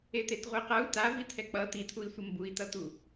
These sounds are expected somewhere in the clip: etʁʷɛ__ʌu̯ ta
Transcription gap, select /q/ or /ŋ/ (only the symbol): q